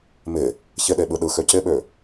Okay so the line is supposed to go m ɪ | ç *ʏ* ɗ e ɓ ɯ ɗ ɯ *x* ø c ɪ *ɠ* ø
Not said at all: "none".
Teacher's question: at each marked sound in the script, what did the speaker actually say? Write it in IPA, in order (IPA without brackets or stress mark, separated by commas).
ɪ, x, ɓ